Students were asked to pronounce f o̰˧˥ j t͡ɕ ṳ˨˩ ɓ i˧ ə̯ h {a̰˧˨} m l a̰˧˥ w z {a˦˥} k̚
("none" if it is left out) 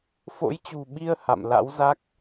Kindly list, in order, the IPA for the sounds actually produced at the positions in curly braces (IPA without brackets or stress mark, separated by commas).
a̰˧˨, a˦˥